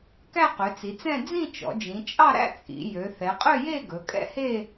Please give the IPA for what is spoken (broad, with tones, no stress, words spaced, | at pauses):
kæ˥˧qø˩˧t͡si˩˧t͡sɛ̃˥˧ d͡zĩ˥˧t͡ʃɔ̰˩˧ d͡ʒĩ˩˧t͡ʃʼɑ˥˧ɾæ̰˥˧ t͡sʼḭ˩˧ jø˩˧θɛ˩˧qʼø˥˧je˥˧ ɡɵ˩˧kʼɛ̰˥˧he˥˧